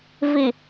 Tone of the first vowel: low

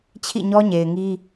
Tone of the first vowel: falling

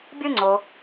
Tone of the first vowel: high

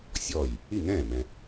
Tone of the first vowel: falling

